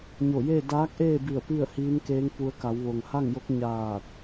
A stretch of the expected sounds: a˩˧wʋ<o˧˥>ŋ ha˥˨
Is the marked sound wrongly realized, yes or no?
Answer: yes